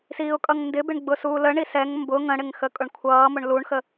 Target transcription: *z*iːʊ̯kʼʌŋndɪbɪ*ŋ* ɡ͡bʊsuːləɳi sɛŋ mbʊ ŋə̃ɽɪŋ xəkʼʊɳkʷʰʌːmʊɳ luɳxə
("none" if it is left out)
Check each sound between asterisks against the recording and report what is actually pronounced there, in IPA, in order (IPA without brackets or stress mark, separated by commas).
s, ɳ